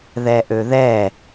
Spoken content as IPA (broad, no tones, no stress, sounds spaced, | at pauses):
ð ɛ ʔ ø ð ɛ